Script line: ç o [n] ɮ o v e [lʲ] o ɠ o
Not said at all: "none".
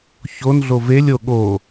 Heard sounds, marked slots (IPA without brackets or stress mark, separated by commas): n, lʲ